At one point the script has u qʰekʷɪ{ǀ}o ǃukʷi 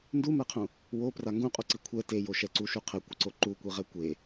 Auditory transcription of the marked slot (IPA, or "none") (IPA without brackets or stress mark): ǀ